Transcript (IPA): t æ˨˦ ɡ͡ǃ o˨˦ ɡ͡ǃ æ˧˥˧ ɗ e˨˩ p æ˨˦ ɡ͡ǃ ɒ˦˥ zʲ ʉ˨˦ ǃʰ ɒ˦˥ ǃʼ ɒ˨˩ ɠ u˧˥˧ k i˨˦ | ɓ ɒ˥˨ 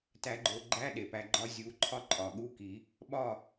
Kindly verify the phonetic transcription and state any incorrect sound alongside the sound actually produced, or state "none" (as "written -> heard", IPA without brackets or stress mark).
ʉ˨˦ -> u˨˦